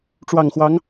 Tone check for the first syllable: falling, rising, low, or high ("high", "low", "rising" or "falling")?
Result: low